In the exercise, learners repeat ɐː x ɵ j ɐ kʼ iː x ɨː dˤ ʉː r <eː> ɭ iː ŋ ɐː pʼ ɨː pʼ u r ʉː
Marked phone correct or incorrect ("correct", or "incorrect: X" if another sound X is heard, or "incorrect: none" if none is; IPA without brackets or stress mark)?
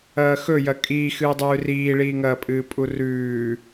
incorrect: iː